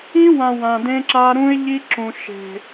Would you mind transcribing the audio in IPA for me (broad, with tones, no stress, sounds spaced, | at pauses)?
ĩ˦ w ã˨ w ã˨ d ẽ˦ ǁ a˦ ɾ ũ˦ ɪ̯ ʎ i˦ ǁ ũ˨ ʃ e̤˨